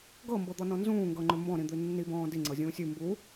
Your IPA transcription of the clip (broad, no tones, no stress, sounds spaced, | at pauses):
ɡ ɤ m b ɤ d̪ ɔ n ɔ̃ n z ũː ŋ ɡ ɤ ŋ͡ǃ ʏ m b ɔ̃ ɾ ĩ d̪ ʉ nː i b ɔ̃ː d i ŋ͡ǀ ɤ zʲ ũː sʲ ʉ m b u